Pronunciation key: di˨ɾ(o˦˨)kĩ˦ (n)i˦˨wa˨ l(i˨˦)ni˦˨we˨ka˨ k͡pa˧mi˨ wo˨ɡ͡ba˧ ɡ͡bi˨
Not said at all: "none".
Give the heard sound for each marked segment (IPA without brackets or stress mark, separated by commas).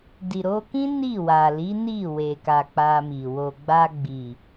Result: o˧, n, i˨˦